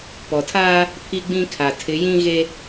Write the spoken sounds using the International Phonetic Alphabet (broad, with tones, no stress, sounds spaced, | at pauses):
p ɔ˨ tʰ aː˦ | pʰ i˦ ɡ͡b ĩ˦ kʰ a˨ tʰ ɪ˨˦ j ĩ˦ ɣ e˦